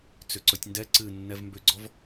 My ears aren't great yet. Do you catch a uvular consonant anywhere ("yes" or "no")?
no